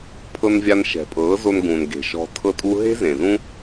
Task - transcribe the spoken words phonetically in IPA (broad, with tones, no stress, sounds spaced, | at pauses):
pʰ ɤ˧ n vʲ a˧ n ʃ ɛ̤˨ pʼ ɤː˨˦ z o˧ n ɡ ũ˨ n ɡ e̤˨ ʃ ɔ̤˧ tʰ ɤ˦ tʼ u˦ ɦ e̤˦ z ẽ˨ z ũ˦